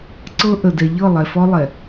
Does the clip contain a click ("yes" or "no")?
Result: yes